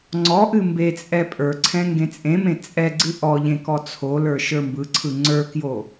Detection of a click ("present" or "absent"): present